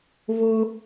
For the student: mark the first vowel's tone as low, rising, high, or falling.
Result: high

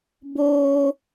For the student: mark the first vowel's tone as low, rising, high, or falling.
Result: low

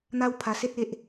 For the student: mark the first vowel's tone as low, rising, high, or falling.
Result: high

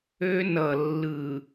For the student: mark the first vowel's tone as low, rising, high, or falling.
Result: high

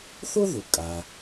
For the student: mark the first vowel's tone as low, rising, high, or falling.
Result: high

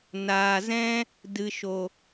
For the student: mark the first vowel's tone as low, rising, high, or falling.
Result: low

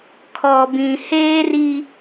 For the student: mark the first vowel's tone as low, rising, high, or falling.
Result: low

